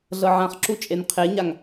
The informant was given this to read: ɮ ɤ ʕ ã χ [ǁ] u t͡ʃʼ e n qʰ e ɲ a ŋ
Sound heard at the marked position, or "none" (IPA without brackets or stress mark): ǁ